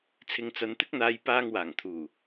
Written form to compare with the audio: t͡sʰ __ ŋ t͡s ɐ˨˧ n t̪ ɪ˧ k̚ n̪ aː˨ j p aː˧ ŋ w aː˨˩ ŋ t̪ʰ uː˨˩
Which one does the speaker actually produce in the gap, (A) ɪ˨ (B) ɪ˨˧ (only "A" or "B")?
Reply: A